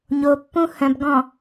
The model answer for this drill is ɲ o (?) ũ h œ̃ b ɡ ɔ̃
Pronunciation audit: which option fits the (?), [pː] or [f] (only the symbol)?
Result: pː